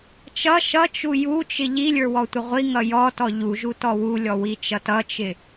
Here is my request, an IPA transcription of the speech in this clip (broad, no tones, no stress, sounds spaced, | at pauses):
t͡ʃ ʌ ʃ ʌ t͡ʃ u j u t͡ʃ ɪ ʎ i lʲ ə˞ w ɔ tʷ ɪ ʁʷ i ŋ ʌ j ɔ t ɔ ʎ u ʒ u t ɔ w u lʲ ɔ w i t͡ʃ ʌ t ʌ t͡ʃ ɪ